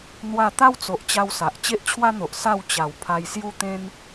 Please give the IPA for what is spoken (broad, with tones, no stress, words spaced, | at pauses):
n̪wa˥˧ t̪a˦wt͡so˨ʔt͡ɕa˧w sa˨ʔ t͡ɕe˦ʔt͡ɕʰwa˦n̪o˨ʔ sa˥˧wt͡ɕa˨˩w pʰa˧jsju˦t̪ẽ˦n